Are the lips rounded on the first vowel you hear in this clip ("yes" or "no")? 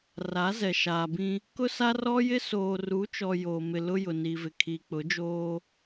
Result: no